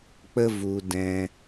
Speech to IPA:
k͡p ə˦ v u˧ d ɛ̃˧

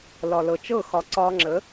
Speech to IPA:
l ɒ˨ l ɤ˨ t͡ʃ ɤ˦˨ x ɒ˨ ǀ ɒː˧ ŋ͡ǁ ə˨˦

